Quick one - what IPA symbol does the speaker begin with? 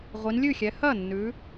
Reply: ʁʷ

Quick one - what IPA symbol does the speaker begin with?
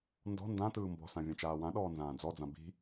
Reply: n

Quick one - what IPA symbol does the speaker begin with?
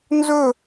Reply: n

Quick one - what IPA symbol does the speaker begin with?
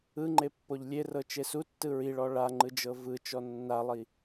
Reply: ɯ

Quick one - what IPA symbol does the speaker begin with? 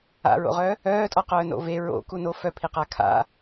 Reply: a̰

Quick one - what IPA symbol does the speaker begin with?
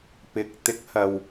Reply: p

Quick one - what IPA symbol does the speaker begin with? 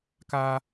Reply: k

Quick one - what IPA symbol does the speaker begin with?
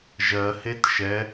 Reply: ʒ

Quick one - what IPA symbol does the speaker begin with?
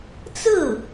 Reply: t͡s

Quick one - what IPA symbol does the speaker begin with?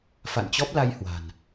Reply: f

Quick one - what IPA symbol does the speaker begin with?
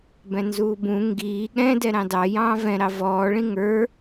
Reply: b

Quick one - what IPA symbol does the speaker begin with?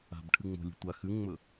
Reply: a̤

